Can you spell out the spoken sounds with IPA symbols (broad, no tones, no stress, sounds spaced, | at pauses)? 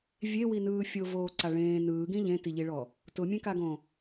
vʲ e w i n ɯː fʲ o v oː ǀ a ɭ ẽː n ɯː ɡ ĩ ʎ ẽ t i ʎ i ɭ ɔ | t ʊ mʲ ẽ k a ɡ õ